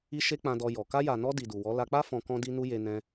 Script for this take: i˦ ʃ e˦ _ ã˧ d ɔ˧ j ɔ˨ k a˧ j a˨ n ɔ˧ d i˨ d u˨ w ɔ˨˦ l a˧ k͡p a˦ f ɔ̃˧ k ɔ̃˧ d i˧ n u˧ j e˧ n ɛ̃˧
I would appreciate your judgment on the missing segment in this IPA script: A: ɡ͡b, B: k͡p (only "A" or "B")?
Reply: B